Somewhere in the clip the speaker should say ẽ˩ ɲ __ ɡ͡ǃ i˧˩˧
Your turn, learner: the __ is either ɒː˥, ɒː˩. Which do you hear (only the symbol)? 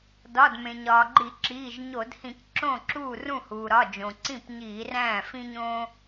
ɒː˩